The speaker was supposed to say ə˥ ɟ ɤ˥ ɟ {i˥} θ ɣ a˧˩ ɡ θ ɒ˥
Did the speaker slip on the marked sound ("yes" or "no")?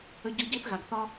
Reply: no